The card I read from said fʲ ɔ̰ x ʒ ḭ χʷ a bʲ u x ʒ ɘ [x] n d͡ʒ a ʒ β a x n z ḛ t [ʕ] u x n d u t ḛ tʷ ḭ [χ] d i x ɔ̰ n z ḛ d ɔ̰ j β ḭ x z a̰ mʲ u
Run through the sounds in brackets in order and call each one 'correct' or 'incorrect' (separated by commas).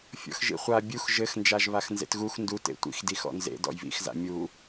correct, incorrect, incorrect